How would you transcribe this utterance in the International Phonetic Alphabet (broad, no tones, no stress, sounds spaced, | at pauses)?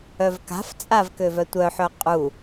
œ v k a̤ f t͡sʼ a v k ø v œ tʷ œ ħ œ qʼ u